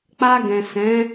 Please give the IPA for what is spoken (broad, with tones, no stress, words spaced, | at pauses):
k͡pa˧ɡɛ̃˨ sɛ̃˨˦